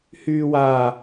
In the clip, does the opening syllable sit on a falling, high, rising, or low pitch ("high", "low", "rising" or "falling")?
low